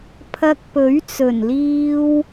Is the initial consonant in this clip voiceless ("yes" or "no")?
yes